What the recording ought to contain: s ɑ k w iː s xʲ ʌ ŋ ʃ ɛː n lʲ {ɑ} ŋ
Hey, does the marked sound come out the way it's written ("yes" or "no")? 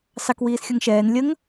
no